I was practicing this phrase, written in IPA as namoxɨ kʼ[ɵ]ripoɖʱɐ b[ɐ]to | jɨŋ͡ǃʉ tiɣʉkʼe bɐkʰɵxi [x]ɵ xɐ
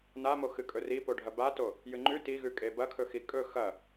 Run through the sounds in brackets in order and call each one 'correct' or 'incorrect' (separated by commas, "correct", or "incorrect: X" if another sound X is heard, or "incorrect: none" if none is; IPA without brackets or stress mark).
correct, incorrect: a, incorrect: kʼ